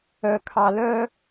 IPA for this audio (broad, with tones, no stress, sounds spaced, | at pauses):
œ˨ kʰ ɑ˨ l œ˦